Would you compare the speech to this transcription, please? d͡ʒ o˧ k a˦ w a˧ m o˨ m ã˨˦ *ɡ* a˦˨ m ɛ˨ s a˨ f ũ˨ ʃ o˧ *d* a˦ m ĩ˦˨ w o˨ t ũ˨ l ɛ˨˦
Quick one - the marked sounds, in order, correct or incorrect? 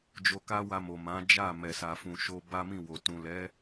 incorrect, incorrect

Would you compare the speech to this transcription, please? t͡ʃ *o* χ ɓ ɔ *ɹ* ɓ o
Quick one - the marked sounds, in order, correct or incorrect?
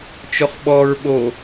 correct, correct

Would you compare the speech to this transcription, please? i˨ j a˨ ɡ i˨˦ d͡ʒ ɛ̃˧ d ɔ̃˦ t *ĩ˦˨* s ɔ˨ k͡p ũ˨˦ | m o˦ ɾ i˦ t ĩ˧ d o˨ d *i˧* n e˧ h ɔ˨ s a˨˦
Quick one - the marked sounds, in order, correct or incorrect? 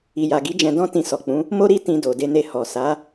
incorrect, incorrect

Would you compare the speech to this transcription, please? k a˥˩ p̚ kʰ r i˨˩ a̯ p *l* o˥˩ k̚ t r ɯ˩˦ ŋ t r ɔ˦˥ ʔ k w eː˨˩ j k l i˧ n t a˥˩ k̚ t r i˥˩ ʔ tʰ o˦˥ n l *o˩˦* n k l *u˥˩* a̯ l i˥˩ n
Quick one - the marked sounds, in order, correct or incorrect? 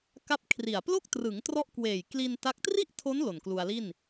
correct, incorrect, incorrect

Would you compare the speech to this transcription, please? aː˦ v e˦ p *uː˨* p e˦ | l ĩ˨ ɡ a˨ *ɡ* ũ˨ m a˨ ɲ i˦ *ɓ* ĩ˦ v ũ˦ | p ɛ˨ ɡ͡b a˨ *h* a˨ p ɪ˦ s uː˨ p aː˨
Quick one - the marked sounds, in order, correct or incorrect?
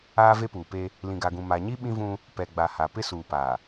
correct, correct, correct, correct

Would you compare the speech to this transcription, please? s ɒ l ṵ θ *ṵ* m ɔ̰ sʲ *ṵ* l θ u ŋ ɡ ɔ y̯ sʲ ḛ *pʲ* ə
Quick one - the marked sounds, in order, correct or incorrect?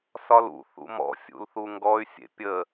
correct, correct, correct

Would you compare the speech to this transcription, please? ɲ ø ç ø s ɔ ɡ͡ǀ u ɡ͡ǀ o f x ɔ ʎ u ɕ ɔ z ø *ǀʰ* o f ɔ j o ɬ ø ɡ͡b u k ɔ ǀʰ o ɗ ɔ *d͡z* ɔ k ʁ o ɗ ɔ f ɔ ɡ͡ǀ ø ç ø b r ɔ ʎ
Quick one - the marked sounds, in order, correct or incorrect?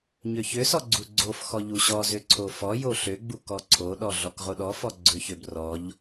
correct, incorrect

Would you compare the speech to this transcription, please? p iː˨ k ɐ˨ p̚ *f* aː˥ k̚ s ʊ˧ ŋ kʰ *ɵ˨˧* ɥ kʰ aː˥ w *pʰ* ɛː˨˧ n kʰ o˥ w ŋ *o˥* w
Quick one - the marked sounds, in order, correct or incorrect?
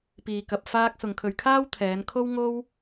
correct, incorrect, incorrect, correct

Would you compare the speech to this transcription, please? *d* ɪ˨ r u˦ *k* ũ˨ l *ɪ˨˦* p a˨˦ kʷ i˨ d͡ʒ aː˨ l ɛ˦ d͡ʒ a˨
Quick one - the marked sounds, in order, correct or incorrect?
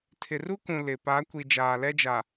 incorrect, correct, incorrect

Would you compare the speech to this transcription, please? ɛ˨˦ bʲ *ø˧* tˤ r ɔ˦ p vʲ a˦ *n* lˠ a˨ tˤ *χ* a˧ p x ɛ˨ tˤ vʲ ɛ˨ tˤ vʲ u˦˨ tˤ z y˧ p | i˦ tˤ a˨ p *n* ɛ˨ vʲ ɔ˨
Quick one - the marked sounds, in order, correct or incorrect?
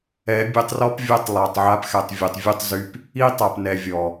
correct, incorrect, incorrect, correct

